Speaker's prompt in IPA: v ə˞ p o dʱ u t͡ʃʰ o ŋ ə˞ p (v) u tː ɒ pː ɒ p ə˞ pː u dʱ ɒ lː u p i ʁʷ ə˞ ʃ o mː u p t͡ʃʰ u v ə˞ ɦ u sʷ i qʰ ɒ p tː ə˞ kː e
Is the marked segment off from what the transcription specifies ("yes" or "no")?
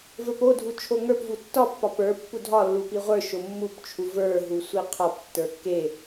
no